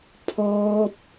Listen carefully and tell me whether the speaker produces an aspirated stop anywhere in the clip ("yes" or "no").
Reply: yes